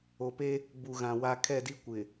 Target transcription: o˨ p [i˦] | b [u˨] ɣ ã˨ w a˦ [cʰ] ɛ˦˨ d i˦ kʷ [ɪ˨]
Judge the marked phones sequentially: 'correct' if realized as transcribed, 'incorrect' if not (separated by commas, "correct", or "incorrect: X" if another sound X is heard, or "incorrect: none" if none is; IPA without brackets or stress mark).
incorrect: e˦, correct, incorrect: kʰ, correct